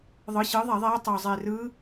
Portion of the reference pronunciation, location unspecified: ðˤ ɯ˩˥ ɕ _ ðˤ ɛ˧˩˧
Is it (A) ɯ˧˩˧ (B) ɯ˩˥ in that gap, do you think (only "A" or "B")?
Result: B